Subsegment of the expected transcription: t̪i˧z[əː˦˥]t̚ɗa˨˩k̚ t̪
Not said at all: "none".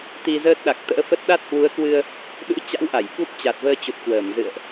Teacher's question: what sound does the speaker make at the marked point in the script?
əː˦˥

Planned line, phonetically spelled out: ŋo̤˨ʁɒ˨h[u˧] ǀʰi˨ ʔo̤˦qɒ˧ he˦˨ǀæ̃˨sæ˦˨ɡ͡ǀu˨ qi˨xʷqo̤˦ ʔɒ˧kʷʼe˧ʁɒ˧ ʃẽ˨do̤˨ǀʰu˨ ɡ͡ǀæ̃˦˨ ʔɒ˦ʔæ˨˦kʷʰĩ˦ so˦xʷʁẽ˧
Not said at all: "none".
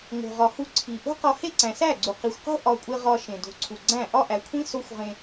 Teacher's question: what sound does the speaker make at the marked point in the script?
u˧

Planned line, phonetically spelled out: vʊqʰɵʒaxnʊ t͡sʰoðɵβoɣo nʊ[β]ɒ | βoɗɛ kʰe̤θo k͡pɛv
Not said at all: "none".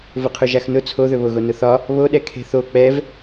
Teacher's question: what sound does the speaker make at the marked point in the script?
θ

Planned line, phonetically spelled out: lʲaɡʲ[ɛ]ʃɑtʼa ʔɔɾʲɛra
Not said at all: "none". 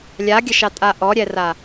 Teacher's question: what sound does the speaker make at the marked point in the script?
ə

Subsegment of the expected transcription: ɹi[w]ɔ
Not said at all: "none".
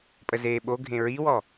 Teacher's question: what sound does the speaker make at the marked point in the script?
w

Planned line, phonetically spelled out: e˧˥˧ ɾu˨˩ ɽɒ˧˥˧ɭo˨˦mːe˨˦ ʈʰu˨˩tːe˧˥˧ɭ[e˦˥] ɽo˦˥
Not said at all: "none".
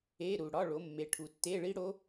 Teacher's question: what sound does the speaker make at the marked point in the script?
i˦˥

